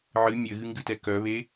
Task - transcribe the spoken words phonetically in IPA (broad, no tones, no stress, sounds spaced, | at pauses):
ʕ ɨ mʲ ɘ ɣ ɨ ŋ ɡ ɨ t ɛ k œ β e